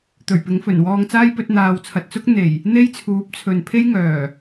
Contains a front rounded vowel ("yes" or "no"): yes